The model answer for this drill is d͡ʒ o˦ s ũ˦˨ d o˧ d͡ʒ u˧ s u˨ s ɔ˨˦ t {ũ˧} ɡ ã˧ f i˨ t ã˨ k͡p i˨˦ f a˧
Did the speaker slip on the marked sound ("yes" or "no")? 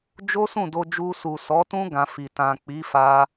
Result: yes